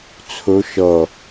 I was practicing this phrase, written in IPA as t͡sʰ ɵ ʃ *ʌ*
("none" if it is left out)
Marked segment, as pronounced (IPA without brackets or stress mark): ʌ